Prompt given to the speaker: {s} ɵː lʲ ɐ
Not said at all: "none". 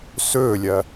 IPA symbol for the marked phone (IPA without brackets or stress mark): s